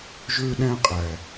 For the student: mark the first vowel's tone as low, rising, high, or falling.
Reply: high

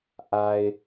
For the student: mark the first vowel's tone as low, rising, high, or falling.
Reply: low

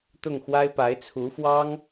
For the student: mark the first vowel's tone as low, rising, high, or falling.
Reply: falling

